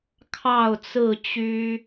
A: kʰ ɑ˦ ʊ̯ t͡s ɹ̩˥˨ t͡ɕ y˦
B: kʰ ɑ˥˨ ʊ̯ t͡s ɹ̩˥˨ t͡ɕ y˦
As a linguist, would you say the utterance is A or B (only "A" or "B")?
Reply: B